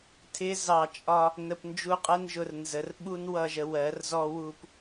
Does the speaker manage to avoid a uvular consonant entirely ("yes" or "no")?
no